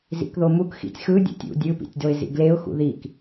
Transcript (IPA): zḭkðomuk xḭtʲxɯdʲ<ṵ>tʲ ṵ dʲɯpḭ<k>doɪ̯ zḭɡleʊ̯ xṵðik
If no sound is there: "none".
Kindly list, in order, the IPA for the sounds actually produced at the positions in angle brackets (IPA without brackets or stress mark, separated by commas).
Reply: ṵ, tʲ